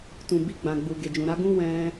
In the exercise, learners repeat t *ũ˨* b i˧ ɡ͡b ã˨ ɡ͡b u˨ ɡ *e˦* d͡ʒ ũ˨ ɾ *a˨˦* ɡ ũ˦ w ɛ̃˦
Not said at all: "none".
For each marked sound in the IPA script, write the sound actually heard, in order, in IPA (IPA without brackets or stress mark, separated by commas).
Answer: ũ˨, e˨, a˨˦